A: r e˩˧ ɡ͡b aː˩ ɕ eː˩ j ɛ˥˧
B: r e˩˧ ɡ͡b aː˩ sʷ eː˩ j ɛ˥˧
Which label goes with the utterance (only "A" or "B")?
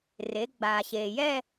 A